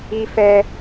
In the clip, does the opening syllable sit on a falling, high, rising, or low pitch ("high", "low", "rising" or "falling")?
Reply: high